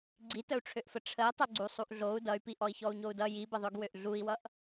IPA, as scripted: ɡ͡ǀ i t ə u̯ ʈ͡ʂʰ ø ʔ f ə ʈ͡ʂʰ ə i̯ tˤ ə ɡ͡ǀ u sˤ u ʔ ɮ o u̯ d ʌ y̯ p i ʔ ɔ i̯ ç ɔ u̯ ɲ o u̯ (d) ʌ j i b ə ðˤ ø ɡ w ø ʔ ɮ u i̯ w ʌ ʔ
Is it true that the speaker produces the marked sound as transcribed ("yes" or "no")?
yes